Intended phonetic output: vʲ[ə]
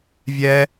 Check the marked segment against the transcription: incorrect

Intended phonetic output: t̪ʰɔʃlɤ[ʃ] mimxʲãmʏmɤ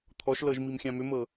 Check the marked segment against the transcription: incorrect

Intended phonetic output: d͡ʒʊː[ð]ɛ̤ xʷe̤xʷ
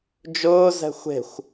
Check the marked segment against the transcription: incorrect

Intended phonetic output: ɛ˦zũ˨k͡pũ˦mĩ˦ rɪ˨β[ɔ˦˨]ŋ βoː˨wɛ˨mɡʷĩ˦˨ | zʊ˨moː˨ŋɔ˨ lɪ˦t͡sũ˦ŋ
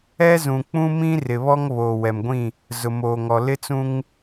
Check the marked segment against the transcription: incorrect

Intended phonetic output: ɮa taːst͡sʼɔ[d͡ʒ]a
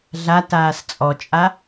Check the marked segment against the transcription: incorrect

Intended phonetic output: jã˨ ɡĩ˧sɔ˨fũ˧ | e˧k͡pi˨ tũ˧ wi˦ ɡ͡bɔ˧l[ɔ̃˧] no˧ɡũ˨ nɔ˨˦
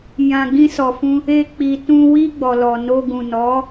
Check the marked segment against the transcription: incorrect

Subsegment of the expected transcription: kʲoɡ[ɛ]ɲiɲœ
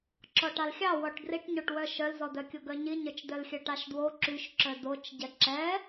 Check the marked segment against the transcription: incorrect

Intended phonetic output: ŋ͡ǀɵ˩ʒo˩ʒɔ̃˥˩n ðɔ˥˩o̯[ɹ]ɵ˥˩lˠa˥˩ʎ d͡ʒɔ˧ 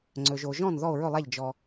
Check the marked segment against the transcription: correct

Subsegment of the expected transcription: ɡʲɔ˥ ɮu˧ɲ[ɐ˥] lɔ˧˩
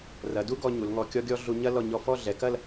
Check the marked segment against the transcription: correct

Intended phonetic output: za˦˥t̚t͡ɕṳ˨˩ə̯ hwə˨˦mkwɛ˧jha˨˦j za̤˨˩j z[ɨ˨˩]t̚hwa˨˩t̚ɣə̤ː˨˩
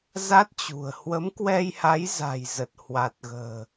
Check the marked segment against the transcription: incorrect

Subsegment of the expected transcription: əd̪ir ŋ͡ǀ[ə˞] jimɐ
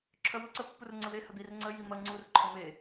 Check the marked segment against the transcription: incorrect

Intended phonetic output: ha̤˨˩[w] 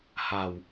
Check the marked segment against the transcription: correct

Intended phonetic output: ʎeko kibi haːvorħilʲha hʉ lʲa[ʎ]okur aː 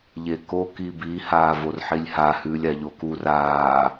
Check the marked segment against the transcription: correct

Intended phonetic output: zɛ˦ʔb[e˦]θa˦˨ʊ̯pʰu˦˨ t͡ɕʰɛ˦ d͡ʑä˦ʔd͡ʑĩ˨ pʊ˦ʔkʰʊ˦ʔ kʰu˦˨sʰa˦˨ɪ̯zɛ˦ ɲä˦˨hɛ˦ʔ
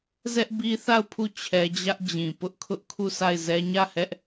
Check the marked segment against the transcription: incorrect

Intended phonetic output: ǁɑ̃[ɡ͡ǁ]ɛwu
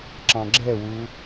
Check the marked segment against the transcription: correct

